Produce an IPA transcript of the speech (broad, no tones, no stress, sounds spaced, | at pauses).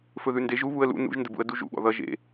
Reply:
f ɵ ð ʉ n d e ʒ u β u ə̯ l ṵ n ṵ ʒ n d ə b ṵ ə̯ d u ʒ ṵ ɠ ɔ̰ ð ʌ ʒ ḛ